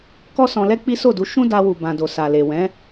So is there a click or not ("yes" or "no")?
no